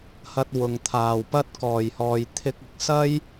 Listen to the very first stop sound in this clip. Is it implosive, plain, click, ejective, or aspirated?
plain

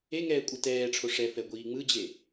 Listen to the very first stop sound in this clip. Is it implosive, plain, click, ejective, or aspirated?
ejective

